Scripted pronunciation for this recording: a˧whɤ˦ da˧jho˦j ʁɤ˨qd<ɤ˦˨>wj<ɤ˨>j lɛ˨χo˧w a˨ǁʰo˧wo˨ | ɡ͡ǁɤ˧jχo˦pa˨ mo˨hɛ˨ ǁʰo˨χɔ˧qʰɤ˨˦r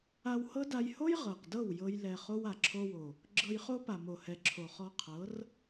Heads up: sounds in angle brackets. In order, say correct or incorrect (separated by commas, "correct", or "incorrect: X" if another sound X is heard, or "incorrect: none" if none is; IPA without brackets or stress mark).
correct, incorrect: ɤ˧